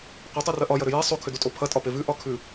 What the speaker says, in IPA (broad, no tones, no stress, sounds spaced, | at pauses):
qʷ ɐ tˤ ʉ r ɐ ʔ ɒ j ɐ ɾ ʏ j e sˤ o kʰ ʏ d u tʼ o pʰ ɐ tʼ ɒ p e v ʉ ʔ ɒ kʰ ʉ